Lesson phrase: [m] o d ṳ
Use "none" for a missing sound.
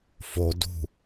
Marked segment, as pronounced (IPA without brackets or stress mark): f